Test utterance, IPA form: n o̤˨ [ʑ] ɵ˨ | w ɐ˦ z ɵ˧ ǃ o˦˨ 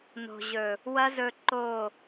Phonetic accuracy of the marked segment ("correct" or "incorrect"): correct